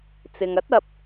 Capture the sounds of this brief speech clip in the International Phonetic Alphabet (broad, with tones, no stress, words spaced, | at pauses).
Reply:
t͡sɪ˨ŋ ɐ˨˥t̚ɐ˨p̚